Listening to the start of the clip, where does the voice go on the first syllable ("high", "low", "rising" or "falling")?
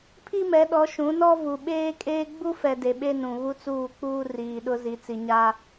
high